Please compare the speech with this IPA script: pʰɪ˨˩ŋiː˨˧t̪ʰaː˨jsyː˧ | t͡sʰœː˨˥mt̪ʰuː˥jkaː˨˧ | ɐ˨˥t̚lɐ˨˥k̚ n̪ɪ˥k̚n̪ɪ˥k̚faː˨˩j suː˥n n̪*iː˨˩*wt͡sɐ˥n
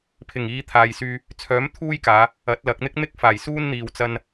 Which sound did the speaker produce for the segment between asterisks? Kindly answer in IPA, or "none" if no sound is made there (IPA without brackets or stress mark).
iː˧